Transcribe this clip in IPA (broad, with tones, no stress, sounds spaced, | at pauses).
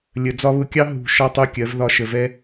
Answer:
lʲ ə˨ d͡z ɒ˧ β ʊ˧ kʲ ɑ˦ ɦ ṳ˨ ʃ ɒ˦ tˤ u˧ kʲ ɜ˨˦ v ð ɒ˧ ʃ ə˨ v ɛ˦